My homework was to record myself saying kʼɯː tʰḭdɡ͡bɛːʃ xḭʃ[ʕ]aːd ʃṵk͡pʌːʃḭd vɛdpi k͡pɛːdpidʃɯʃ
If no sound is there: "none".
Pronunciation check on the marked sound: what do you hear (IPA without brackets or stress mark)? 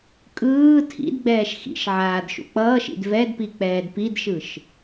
ʕ